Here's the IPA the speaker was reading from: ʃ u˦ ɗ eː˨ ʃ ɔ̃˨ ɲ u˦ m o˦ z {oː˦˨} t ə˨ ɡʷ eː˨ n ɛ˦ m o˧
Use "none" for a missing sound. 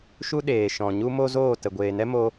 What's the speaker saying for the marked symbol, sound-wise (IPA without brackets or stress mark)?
oː˦˨